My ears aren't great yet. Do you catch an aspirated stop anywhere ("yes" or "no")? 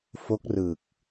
no